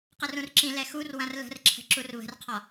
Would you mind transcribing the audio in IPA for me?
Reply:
q ə r ũ r ǁ ĩ l ɛ x u r w ɐ̃ r l ə̤ r ǁʰ ə̤ ǁ u r β ə̤ r qʰ ɒ

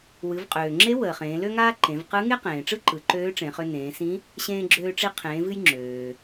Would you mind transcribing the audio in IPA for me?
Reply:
w ɨ˩˧ v qʼ øː˩ ŋ͡ǁ e˧˥ w əː˩ χ ẽː˩˧ l ø˥ ŋ aː˥ ǃ ẽ˩˧ v q ɯ˧˥ ŋ e˥ q ẽː˩ ʈ͡ʂ ɯ˥ ǃ ɯ˩˧ ǃ øː˧˥ ʈ͡ʂ ẽ˩˧ χ ø˧ n ẽː˩˧ s ĩ˧˥ | ɕ ẽː˧ ɡ͡ǁ øː˧ ʈ͡ʂ i˧ qʰ ẽː˩˧ v ɨ˧ j ŋ͡ǁ øː˩

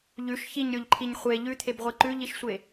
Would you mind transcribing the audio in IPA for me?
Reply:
ʎ ʉ ʃ ç i ɲ ɾʲ o ʎ ǃʰ i ɲ χʷ e ʎ ʉ t̪ʰ e b ʁʷ e ǃ ʉ ʎ i ʃ sʷ e

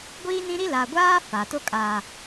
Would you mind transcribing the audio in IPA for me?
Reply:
ɡʷ iː˦ n ĩ˦ ɾ i˦ l a˨ ɡʷ aː˦ f a˨ t o˦ kʼ aː˨

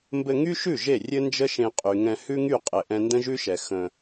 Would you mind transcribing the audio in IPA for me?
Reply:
m b ɘ˧ ŋ y˦ ʃ ʉ˦˨ ʒ e˦˨ rʲ ɘ˦ n d͡ʒ ə˦ ʃ ẽ˧ qʼ y˨ ŋ ɛ̃˧ h ʉ˦ ŋ y˦˨ qʼ ɘ˨ ʔ ɛ̃˧ n d ə̃˦ ʒ ʉ˦ ʃ ɛ˨ x ə̃˧

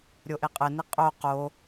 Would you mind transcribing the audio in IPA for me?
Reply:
ɾʲ o ʔ e qʼ ɘ n i qʼ o q o

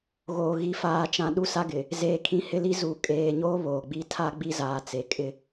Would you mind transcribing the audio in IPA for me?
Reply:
ɣ oː˨ ɣ i˨˦ f aː˨ t͡ʃ ã˨ ɗ u˦ s a˦ ɡ ɪ˨ | z eː˨ kʰ ĩ˨ h ɪ˦ l i˦ z u˨ kʼ eː˨ ɲ oː˦ β oː˨ ɡ͡b i˦ tʰ a˦ ɡ͡b i˦ z aː˨ t͡s e˨ kʼ ɪ˦

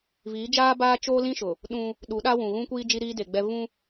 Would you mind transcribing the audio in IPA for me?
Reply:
v iː˨˦ d͡ʒ aː˦ b aː˦ t͡ʃ oː˦ l ĩ˦ ʃ ʊ˨ | ɗ ũ˦ | ɗ u˨˦ ɗ a˦ w ũ˨ ɣ ũ˦ kʷ iː˦ d͡ʒ i˦ ɾ iː˦ d e˨ ɡ͡b ɛ˦ v ũ˦

